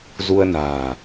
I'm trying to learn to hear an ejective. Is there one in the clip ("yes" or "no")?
no